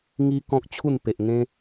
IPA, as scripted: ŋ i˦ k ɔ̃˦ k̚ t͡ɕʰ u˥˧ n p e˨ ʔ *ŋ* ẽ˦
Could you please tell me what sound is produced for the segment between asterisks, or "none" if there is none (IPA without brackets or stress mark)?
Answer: ŋ